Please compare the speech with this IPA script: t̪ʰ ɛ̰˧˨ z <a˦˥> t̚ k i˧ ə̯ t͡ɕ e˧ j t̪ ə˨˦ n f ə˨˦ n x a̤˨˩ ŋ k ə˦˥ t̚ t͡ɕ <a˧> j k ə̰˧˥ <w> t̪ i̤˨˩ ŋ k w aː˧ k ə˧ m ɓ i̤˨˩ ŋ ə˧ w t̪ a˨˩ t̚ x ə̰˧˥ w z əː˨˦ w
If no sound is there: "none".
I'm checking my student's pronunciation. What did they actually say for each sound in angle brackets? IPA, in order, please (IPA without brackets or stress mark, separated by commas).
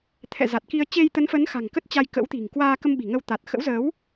a˨˩, a˧, w